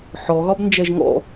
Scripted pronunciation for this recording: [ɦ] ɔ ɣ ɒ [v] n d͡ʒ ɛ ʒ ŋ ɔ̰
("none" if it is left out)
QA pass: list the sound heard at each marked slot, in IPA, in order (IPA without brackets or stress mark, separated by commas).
ħ, b